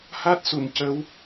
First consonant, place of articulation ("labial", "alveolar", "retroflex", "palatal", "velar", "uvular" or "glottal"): glottal